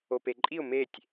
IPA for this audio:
o p e ǃʼ i ʊ̯ m e tʲ

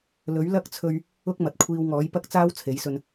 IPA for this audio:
l ɵ˨˥ ɥ l ɐ˥ k̚ t͡sʰ ɵ˧ ɥ | ʊ˥ k̚ m ɐ˨ t̚ kʷʰ iː˧ w ŋ ɔː˨˥ j p ɐ˥ k̚ t͡s aː˥ w t͡sʰ e˨˥ j s ɵ˧ n

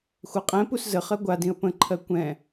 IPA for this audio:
xʷ a qʼ ɛ̃ p u s z ə χ ɜ ɡʷ a d ĩ ə̯ p ə̃ ǃʰ ɜ kʷ ɛ̃

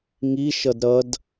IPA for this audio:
ŋ i ʃ ʌ d ɾ ʌ d

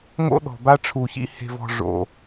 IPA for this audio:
ŋ o̰˦ ɗ ɔ̤˨ b a˦ ʈ͡ʂʰ u˨ ç ḭ˦ h e̤˨ v ɔ̤˨ ʐ o̰˨

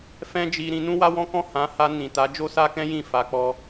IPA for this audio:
f ɛ̃˦ d͡ʒ i˧ ɾ ĩ˧ n ũ˦ w a˦ w ɔ̃˦ k ɔ̃˦˨ h ã˨˦ h a˧ n ĩ˨ t a˨˦ d͡ʒ o˦ s a˦ k ɛ̃˦ j ĩ˦˨ f a˨ k͡p ɔ˧

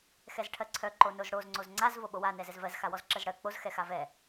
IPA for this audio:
x ɛ z ʈʰ ɜ ǀʰ œ ǃ o n o z ɽ o z ŋ͡ǀ o z ŋ͡ǀ a z v o ɓ o w a n ɛ z ɛ z v ɜ z x a w ɔ z ǁ ɜ z ɽ ɜ k͡p o z x ɛ x a v ɛ

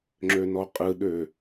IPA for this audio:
ŋ͡ǁ ø n ɔ qʼ ɯ ɗ ø

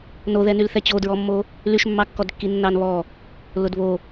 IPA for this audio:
n o ð ɛ n y l θ ɛ t͡ɕ o d ɹ ɔ mː o | l y ʃ mː ɑ kː ɔ d kː i nː ɑ n β ɔ | l ʊ d β o

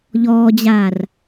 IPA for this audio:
ʎ ɔː d͡ʑ aː r

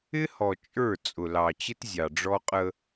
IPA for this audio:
ɪ˦ h ɔ˨ t͡ʃʼ ə˞˦˨ t͡sʼ ʊ˨ l ɑ˨ t͡ɕ ɪ˦ t zʲ ɑ˨ ɖ͡ʐ ɔ˦ qʼ ə˦

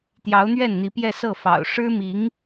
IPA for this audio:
t̪ j ɑ˧˥ ʊ̯ n̪ ɥ ɛ˥˩ n n̪ i˧˥ p j ɛ˥˧ s ɤ˥˩ f ɑ̰˨˩ ʊ̯ ʂ ɻ̩˥ m i˧˥ ŋ

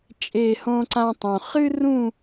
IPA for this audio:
t͡ʃʼ e˥˧ h õ˥ ǀ ã˥ tˤ õ˧ χ ɨ˥ r ũ˥˧

